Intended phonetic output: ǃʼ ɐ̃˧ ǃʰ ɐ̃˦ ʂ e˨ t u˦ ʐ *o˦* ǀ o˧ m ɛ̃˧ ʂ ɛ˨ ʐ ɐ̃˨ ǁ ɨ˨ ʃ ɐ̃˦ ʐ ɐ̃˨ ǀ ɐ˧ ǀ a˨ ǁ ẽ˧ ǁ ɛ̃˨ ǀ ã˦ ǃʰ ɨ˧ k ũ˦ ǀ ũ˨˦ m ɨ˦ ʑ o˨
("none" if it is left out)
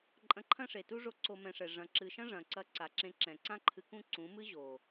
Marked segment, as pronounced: o˦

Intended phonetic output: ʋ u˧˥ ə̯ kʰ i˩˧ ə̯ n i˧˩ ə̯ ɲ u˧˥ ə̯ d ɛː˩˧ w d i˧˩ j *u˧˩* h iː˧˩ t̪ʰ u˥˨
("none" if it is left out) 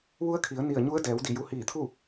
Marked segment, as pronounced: u˧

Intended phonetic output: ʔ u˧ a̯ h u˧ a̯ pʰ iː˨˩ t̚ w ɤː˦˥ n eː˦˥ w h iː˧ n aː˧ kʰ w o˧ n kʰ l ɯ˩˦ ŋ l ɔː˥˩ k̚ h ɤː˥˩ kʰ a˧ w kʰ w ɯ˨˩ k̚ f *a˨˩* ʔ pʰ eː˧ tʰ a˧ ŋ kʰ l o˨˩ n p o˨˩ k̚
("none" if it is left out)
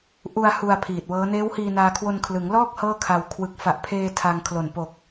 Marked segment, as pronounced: a˨˩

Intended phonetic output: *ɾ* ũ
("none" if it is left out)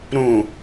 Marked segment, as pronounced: ɾ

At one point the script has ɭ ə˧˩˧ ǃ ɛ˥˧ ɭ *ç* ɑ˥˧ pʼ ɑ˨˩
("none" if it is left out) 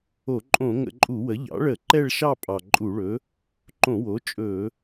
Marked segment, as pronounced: ʃ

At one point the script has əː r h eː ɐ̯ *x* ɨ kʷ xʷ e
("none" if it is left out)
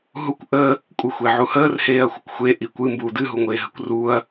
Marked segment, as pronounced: xʷ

